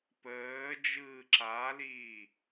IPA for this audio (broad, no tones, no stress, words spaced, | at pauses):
pəː d͡ʒɯːǁaliː